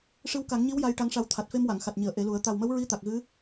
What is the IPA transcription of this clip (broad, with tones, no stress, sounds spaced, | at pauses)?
ʂ ɨ˧ w k a˨˩˦ ŋ ɲ i˧˥ w j a˧ j ʈ a˧˥ ŋ ʂ a˧˥ w t̪ʰ a˨˩ t̚ f e˧ m w a˨˩˨ ŋ x a˨˩ t̚ ɲ i˨˩˨ ə̯ ʔ e˨˩˦ l u˨˩˦ ə̯ t̪ a˨˩ w m ə˧˥ w ɹ i˧˥ t̪ a˨˩ k̚ ɣ ɨ˧˥